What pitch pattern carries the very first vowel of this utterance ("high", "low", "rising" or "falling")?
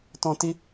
high